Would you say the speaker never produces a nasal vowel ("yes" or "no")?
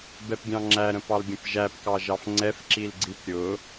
no